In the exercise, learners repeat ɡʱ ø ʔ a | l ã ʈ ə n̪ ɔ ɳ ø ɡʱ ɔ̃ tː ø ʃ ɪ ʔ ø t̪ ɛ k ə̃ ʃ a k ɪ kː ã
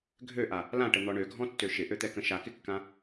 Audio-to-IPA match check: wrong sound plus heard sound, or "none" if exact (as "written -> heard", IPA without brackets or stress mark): none